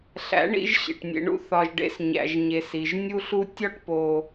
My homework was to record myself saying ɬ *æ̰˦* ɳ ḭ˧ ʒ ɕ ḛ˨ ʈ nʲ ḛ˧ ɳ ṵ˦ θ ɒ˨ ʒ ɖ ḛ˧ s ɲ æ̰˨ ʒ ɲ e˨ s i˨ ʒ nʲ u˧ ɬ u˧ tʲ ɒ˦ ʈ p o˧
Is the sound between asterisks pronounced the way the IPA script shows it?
no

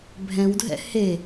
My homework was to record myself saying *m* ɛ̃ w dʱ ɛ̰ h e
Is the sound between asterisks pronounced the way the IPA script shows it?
no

